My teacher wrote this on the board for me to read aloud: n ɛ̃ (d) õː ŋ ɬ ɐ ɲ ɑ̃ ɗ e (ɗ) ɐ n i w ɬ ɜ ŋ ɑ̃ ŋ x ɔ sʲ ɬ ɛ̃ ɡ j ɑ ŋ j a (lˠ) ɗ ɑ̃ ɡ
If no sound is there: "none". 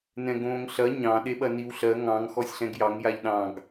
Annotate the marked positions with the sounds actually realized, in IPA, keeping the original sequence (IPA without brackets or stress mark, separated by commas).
ɡ, ɓ, ʎ